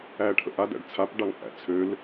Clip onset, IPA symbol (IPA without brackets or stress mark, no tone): æː